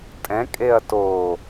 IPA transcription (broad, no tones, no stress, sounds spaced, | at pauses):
tʼ ɛ̃ kʼ e ɐ̯ t o